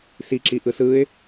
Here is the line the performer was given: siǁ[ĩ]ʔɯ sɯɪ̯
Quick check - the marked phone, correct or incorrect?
incorrect